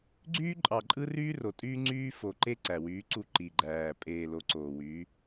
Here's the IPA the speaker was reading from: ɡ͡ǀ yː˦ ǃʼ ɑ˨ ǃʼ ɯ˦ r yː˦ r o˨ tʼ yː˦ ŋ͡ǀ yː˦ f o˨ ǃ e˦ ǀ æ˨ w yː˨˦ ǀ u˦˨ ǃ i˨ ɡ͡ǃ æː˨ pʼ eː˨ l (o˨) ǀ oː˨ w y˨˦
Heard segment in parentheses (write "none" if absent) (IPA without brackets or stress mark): o˨